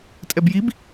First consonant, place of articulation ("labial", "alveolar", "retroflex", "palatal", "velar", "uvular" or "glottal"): alveolar